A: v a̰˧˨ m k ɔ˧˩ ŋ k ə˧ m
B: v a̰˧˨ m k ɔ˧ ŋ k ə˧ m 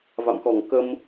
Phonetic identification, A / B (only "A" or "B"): A